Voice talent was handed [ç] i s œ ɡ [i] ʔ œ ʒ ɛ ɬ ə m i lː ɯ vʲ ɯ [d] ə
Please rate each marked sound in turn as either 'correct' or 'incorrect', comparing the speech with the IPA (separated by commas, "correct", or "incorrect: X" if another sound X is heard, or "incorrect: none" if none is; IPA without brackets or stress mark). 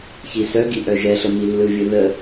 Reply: correct, correct, incorrect: ð